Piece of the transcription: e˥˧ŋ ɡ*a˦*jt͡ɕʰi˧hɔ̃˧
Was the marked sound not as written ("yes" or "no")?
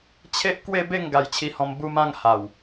yes